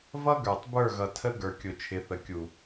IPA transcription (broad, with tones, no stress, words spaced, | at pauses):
vʌ˦ɡə˞˨tˤ bə˞˦˨ɣʌ˨tʰə˦ ɡə˞˨kʲʊ˨t͡ʃʰɪ˨˦θə˨ kʲu˨